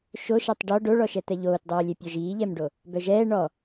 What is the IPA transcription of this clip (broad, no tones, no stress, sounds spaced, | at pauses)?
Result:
ʃ o ʃ a tˤ ɖ ɔ ɖ o ɭ ɔ ʃ ɛ t̪ ɛ ʎ oː t dˤ oː lʲ ɛ pʲ ɔ ʒ iː ʎ ɛ m ɖ o | b œ ʒ ɛː ɳ ɔ